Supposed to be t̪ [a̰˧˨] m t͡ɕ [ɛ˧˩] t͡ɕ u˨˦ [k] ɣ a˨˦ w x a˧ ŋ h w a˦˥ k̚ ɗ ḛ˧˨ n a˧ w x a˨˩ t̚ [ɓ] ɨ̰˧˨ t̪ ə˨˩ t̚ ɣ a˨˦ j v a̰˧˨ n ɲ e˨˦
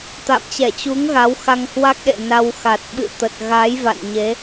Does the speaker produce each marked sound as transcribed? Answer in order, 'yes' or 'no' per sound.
yes, yes, no, yes

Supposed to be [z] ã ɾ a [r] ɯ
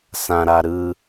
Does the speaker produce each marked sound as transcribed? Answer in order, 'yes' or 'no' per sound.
no, no

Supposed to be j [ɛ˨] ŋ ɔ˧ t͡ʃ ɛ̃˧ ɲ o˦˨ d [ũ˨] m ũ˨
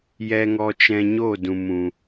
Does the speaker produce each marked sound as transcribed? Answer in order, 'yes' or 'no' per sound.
no, yes

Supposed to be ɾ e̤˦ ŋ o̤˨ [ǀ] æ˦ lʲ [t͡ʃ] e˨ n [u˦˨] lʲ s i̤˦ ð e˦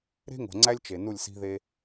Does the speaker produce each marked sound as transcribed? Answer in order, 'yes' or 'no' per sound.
no, yes, yes

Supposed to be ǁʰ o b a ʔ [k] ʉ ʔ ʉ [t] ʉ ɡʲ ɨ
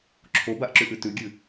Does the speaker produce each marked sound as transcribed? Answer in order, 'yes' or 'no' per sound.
no, yes

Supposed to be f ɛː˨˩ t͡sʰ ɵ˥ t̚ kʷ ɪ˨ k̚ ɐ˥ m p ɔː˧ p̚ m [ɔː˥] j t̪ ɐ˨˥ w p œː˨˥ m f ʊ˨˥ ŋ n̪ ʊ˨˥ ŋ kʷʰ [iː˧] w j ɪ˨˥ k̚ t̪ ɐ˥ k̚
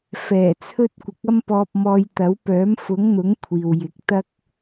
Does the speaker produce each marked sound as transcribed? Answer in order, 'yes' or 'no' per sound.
no, no

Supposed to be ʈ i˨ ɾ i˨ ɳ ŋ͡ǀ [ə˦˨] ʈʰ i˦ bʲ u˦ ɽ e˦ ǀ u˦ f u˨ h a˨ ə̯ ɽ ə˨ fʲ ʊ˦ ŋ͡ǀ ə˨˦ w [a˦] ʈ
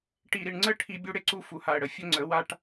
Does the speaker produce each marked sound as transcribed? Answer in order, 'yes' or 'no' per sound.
yes, yes

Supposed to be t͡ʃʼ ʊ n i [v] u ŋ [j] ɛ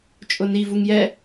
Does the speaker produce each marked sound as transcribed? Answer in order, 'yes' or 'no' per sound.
yes, yes

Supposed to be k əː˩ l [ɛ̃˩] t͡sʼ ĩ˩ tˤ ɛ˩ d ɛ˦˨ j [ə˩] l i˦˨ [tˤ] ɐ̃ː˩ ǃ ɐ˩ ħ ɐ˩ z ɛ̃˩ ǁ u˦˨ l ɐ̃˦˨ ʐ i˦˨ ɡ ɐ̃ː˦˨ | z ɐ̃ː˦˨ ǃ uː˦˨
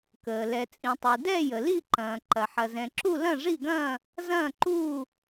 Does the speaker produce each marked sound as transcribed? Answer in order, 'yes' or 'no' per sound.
no, yes, no

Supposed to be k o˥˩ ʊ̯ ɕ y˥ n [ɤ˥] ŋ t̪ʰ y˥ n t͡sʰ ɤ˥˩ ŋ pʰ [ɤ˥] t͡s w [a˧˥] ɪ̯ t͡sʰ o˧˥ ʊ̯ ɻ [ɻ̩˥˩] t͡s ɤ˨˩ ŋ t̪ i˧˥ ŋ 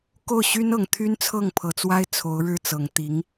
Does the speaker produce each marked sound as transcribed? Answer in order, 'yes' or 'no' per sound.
no, no, no, yes

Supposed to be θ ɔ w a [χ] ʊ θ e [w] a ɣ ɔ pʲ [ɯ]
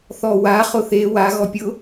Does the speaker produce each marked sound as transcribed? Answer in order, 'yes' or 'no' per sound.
yes, yes, no

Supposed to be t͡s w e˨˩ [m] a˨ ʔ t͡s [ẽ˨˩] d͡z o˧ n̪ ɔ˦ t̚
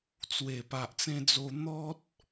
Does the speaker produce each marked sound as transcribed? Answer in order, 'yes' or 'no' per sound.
no, no

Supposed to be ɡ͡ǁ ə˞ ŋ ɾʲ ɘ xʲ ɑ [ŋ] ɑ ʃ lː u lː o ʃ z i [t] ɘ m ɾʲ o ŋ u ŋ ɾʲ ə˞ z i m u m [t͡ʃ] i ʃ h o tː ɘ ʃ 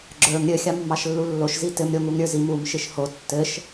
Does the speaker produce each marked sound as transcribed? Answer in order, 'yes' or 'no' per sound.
no, yes, no

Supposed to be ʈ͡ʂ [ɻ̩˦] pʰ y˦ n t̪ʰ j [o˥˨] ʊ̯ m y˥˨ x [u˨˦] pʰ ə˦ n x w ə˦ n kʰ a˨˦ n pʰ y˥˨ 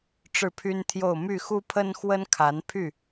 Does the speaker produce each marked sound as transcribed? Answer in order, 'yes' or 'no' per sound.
no, yes, no

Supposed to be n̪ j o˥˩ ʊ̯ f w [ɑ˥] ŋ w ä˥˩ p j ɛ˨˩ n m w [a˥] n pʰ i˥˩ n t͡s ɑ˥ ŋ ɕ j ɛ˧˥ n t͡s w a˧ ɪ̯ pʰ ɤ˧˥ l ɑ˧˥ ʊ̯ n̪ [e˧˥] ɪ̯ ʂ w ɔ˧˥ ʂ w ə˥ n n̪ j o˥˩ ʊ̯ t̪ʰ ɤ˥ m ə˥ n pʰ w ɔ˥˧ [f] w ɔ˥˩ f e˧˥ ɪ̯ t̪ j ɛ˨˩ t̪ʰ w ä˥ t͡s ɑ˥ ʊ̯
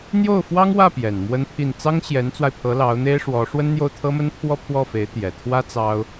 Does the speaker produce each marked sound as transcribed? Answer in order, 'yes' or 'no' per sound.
yes, no, no, no

